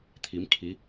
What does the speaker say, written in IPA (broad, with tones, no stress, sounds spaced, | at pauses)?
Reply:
t̪ʰ i˩˧ m kʰ i˩˧